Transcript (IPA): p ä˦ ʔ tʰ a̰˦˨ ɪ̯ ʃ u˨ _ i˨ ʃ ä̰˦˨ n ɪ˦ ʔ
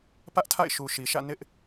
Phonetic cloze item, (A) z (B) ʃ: B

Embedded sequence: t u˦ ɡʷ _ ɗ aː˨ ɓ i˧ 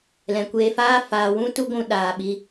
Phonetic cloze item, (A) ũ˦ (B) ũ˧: B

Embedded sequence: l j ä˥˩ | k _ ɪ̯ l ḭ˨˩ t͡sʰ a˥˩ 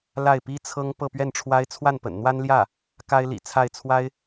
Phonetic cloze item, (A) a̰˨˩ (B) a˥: B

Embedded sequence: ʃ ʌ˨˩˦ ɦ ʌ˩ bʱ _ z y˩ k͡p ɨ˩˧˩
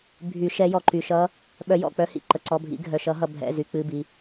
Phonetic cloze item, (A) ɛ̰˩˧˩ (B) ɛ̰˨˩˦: A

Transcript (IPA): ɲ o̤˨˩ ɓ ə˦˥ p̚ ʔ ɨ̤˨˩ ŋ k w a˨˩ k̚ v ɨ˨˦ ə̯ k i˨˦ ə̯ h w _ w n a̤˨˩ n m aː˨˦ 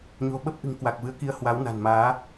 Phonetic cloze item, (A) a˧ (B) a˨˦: B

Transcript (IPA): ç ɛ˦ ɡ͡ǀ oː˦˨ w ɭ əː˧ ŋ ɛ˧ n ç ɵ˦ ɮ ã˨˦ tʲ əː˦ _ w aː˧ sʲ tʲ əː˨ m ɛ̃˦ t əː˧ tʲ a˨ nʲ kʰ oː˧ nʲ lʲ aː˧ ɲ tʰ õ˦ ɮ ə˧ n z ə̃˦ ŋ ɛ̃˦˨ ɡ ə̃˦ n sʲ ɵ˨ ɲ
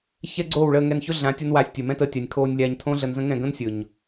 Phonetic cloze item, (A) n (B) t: A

